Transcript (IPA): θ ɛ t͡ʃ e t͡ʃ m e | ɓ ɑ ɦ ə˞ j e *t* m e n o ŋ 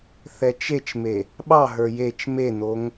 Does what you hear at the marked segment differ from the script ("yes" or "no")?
yes